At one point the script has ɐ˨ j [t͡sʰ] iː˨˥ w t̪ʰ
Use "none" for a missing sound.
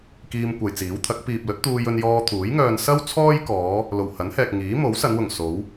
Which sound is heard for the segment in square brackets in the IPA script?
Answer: t͡s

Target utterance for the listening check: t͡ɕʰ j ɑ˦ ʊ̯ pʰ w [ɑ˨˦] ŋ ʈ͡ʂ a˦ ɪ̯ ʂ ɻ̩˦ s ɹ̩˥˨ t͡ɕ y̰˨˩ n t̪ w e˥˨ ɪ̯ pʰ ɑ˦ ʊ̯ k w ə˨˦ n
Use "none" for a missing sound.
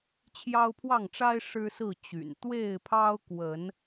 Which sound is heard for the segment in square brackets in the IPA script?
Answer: ɑ˥˨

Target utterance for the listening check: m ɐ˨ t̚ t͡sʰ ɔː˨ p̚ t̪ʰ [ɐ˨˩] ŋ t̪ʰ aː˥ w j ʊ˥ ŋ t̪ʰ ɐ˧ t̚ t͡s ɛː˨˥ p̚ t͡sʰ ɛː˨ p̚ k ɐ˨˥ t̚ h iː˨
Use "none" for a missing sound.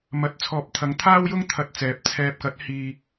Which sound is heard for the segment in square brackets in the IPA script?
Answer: ɐ˨˥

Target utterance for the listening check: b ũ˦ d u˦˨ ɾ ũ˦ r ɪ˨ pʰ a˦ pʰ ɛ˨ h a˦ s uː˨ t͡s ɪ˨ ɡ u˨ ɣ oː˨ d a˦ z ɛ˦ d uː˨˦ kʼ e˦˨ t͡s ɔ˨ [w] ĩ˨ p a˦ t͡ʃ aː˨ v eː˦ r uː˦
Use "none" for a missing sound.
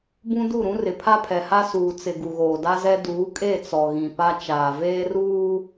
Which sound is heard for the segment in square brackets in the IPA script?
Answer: ɣ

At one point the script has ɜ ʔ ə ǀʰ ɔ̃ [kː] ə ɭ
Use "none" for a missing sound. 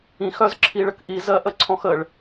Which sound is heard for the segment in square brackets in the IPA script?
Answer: x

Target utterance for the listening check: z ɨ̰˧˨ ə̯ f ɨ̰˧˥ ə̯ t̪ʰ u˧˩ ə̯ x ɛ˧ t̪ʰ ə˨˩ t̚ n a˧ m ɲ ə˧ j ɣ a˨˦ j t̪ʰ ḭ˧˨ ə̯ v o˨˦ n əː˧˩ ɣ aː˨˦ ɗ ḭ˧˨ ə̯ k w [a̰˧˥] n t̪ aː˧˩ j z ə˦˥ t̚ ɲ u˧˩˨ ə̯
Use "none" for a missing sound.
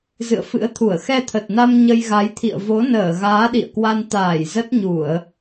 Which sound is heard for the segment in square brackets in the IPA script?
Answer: a˧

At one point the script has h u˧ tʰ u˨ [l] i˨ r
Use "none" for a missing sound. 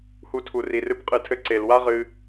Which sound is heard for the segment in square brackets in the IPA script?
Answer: r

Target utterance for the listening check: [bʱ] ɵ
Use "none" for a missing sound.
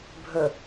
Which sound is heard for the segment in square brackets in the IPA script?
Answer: bʱ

